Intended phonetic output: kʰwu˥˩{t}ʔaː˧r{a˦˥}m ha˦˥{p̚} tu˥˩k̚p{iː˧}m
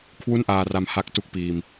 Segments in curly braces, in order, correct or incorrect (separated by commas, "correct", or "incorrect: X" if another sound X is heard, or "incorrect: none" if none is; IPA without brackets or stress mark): incorrect: n, incorrect: a˧, incorrect: k̚, correct